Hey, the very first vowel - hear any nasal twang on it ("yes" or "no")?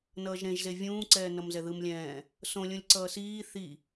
no